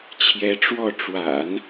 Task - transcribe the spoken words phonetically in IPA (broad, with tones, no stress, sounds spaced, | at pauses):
t͡ɕʰ j ɛ˧˥ ʈ͡ʂ w ɔ˥˩ ʈ͡ʂ w a̰˨˩˦ n